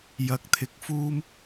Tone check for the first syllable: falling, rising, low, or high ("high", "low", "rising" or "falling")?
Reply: rising